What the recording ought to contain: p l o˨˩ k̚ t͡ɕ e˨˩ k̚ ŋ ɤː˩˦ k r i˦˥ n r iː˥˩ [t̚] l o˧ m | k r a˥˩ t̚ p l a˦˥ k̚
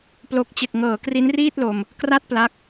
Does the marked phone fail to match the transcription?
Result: no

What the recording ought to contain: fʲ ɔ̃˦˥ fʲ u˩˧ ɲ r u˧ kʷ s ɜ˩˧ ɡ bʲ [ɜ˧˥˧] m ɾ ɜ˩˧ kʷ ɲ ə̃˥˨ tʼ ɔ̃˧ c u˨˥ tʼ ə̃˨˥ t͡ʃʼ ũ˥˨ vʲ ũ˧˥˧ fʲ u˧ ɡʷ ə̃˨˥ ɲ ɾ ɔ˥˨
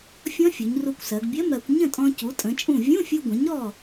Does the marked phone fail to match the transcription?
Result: no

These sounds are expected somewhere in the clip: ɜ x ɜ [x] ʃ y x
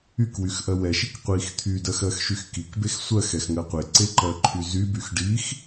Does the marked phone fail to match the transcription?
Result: no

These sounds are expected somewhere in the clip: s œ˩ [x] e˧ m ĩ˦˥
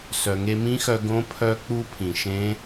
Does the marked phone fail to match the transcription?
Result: yes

